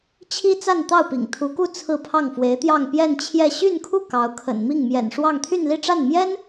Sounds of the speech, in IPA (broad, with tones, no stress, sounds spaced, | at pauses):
t͡ɕʰ i˥ t͡s a˥˧ n t̪ ɑ˥˩ ʊ̯ p ḭ˨˩ ŋ t̪ʰ u˧˥ k u˥˧ t͡sʰ ɹ̩˥˧ pʰ ɑ˥˩ ŋ f w e˧˥ ɪ̯ t̪ j ɑ˥˧ ŋ p j ɛ˥˧ n t͡ɕʰ j ɛ˥˧ ɕ y˥˧ n kʰ u˥˩ k ɑ˧˥ ʊ̯ kʰ ə̰˨˩ n m i˥˩ ŋ m j ɛ̰˨˩ n ʂ w ɑ˥˧ ŋ t̪ʰ y˥˧ n l i˥˧ ʈ͡ʂ a˥˩ n m j ɛ˥ n